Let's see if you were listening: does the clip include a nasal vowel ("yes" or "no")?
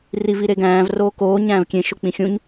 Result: yes